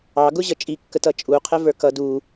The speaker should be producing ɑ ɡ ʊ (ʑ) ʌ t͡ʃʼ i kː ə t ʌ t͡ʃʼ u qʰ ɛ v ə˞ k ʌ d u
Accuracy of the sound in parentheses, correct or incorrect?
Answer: correct